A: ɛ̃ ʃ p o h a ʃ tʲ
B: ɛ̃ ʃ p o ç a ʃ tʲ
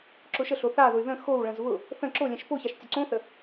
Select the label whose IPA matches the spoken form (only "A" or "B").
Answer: B